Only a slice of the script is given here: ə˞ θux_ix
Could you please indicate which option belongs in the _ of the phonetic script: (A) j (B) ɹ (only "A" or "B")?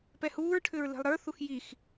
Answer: A